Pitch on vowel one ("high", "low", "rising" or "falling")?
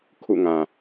falling